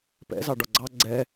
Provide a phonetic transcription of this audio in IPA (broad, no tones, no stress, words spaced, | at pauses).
pɛ̰zɑ ɖɒɡ͡ǀɑ ɡ͡ǀɛ